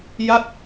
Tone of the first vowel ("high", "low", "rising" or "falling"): falling